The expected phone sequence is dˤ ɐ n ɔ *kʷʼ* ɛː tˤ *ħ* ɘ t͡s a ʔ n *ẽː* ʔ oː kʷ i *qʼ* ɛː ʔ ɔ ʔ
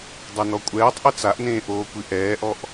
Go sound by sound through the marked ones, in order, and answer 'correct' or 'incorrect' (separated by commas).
correct, incorrect, correct, incorrect